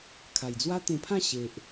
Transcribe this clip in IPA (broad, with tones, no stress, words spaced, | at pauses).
kʰa˨˩jd͡zwa˦t̪ẽ˧pʰã˥˧ ɕe˨ʔ